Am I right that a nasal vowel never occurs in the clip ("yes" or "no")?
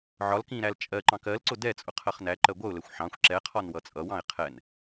no